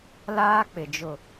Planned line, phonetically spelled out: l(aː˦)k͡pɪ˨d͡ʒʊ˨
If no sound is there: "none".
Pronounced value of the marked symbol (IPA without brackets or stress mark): aː˦